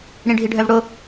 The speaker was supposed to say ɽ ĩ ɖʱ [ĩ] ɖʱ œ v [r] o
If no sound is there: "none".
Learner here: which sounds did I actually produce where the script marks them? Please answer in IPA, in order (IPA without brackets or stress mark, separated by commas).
i, ɽ